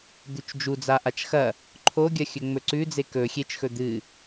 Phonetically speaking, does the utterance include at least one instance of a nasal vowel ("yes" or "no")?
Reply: no